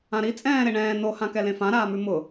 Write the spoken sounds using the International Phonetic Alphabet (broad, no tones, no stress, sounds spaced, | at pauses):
ã ɾ i t͡sʼ ɛ̃ː ɾ e ɳ ɛ̃ː n o h ã k ɛ l ẽ f ã ɾ aː m ʉ m ʊ